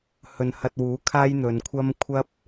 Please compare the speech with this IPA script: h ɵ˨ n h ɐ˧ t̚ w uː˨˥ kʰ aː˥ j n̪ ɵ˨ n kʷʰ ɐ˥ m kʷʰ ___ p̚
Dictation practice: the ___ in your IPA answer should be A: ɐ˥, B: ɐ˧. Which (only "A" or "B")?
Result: A